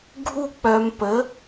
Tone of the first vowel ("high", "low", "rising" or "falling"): high